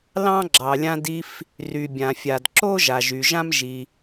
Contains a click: yes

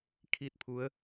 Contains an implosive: no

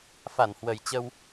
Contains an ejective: no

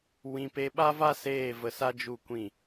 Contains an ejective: no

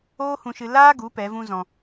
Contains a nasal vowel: yes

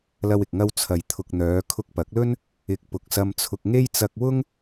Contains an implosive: no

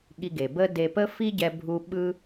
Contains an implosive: yes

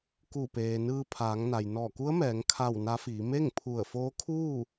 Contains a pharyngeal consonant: no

